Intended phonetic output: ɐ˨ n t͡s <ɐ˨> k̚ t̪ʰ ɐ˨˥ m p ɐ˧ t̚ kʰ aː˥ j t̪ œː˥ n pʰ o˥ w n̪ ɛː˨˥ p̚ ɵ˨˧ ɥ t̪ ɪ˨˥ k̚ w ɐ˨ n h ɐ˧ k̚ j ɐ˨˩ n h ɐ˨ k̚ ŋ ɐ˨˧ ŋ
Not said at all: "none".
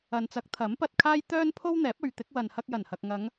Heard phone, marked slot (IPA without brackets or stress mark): ɐ˨˥